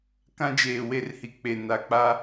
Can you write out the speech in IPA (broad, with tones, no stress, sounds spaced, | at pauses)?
k ã˦ d͡ʒ eː˨ w e˦˨ r h i˨ k͡p e˨ n a˨ k͡p a˦